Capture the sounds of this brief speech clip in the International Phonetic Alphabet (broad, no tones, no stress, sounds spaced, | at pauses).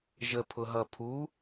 ʒ ə pʰ ʊ ɦ ʌ pʰ u